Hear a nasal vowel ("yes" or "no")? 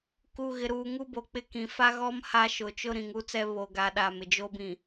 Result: yes